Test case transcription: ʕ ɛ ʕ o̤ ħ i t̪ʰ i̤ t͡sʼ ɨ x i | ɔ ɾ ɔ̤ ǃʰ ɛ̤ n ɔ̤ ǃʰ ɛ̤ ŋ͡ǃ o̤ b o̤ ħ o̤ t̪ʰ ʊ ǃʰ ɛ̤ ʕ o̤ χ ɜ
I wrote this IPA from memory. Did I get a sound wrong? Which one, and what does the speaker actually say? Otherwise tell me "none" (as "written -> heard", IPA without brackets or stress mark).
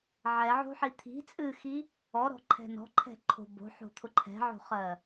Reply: ŋ͡ǃ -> ǃʰ